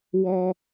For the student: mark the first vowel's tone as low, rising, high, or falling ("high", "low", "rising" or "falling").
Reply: high